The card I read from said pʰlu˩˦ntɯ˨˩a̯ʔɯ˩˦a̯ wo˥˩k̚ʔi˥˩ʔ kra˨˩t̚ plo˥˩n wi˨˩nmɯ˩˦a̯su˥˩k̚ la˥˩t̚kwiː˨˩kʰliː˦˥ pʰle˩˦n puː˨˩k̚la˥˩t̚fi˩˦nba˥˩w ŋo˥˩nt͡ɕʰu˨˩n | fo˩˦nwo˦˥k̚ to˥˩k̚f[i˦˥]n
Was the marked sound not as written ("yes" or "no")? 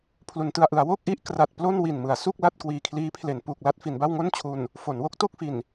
yes